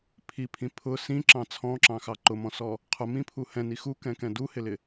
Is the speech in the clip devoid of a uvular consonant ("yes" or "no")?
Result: no